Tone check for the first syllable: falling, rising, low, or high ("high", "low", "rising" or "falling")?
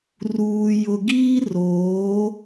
low